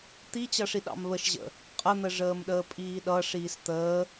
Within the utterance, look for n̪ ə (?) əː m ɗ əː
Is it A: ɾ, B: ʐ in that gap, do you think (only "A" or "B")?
B